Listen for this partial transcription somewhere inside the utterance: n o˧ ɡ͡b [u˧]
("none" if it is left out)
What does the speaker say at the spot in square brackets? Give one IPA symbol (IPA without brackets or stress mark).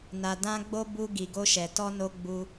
u˧